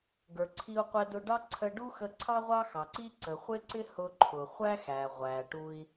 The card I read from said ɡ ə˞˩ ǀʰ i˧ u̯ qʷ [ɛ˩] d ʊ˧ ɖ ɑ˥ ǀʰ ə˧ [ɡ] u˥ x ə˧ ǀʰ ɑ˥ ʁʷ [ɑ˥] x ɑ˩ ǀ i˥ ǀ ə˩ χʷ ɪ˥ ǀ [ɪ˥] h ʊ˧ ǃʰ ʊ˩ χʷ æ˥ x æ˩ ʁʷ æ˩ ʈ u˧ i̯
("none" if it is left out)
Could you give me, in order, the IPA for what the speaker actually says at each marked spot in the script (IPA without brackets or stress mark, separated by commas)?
ɛ˧, ɖ, ɑ˥, ɪ˥